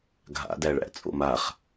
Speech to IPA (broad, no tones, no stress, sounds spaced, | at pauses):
ɡʱ a̰ d æ ɭ æ̰ t͡sʼ o̰ m a χ